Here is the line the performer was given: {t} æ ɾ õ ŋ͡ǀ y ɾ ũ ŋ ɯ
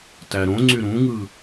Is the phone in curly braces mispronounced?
no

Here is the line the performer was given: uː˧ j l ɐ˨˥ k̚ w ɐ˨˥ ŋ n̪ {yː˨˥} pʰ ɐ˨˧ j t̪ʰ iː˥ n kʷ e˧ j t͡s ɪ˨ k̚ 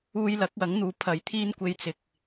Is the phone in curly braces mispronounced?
yes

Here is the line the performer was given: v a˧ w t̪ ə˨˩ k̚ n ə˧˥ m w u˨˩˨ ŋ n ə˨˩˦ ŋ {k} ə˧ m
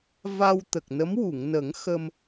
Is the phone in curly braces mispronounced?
yes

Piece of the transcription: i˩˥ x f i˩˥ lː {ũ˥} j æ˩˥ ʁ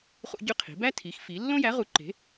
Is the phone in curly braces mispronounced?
yes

